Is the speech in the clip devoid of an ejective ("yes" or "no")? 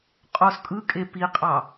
no